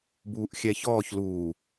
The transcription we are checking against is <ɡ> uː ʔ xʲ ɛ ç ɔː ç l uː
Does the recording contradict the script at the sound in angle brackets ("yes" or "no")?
yes